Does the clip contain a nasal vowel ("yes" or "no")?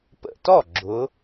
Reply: no